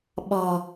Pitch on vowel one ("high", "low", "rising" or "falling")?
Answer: low